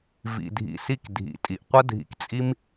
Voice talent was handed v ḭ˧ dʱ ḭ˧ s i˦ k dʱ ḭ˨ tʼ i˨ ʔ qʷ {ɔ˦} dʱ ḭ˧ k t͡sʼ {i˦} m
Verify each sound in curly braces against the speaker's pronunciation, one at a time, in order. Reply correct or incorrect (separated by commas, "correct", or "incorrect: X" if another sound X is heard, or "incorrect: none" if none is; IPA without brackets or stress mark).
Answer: incorrect: ə˦, correct